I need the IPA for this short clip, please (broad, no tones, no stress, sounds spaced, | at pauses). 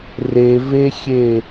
r e v e xʲ e